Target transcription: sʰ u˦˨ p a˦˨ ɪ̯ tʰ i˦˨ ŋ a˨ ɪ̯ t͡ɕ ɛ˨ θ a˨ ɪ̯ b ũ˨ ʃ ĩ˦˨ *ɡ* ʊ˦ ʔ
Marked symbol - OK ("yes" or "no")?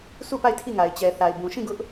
yes